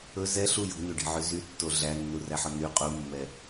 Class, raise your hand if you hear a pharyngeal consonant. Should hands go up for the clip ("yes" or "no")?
yes